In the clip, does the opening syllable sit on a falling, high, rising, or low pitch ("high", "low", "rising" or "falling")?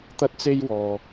high